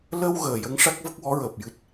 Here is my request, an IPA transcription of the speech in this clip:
lə˧w ɣəː˨˩jə˧˥ŋ ʂa˦˥k̚və˦˥k̚wɔ˧˥ɹəː˨˩p̚ jɨ˦˥t̚

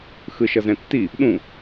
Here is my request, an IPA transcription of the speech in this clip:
xɯʃʌzɛ̃tːi | ɗũ

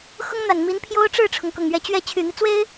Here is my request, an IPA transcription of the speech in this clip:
xʊ˥ŋn̪a˨˩n mi˧˥npʰjo˥ʊ̯ʈ͡ʂɻ̩˥˩ʈ͡ʂʰʊ˩ŋ kʊ˨˩ŋɥɛ˧˥t͡ɕɥɛ˥˩ t͡ɕʰy˨˩n̪i˦t͡swe˥ɪ̯

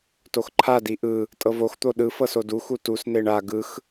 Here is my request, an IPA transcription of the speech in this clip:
toxǃʰa diʔɯ | tʼɤvox t̪oɗɯ fɤsodu xutus neɳa ɡɯx

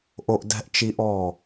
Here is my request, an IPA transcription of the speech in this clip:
ʔo˦ʔdɛ̤˦ʔt͡ʃi˦ʔɔ˦˨

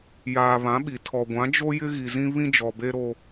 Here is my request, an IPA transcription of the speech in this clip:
jaː˨βã˨˦ɓi˨ tʰɔ˨ɡʷã˨˦ d͡ʒo˦jɪ˦ ɣi˨zĩ˦ βĩ˦d͡ʒɔ˨ be˦ɾo˦

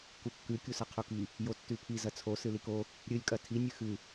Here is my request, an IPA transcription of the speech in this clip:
kukːʉ kʲusɐqʰuki | jotːʉpʰi zɐt͡sʰo sɨliko | ɾʲɨlʲ kʼɐtʰi nʲɨxɨ

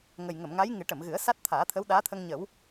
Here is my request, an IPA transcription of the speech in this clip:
ŋə˨˩jŋə˨˩˨mŋa˧˥j ŋɨ˨˩˦ʈə˨˩˨mɣɨ˨˩˦ə̯ sa˦˥t̚t̪ʰaː˨˩˦t̪ʰə˧˥w ɗaː˧˥t̪ʰə˧ŋɲə˨˩˦w

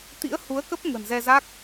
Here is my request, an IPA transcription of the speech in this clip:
t̪ḭ˧˥ə̯hu˨˦ə̯kə˦˥p̚ ŋə̤˨˩nzɛ˧za˦˥k̚

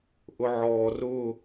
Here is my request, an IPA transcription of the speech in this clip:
ʔʊʕɔːrʊ

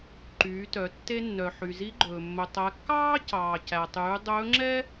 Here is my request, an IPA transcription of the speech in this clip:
ǃyː˩˧tœ˩˧ tːe˧nːœ˩ ħy˩zi˧˥ɡ͡ǃɵː˩ mːɵ˩tˤæ˩˧ kːɑː˥cɑː˩ cæ˩tˤyː˩˧ dˤɵː˧˥ŋ͡ǁɛ˥

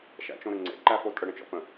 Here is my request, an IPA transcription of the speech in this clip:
ʃæ̰t͡ʃõɾəŋ͡ǀḛ ǃæfotʼə ɽə̃t͡ʃɔ̰pə̃

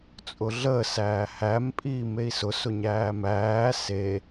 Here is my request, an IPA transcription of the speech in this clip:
t͡sʼʊɮəː sæːhæm pʼiːmei̯sʊ sʊɲæːmæː se

